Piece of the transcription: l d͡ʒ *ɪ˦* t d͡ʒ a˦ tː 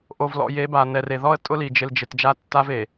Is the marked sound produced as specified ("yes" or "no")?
no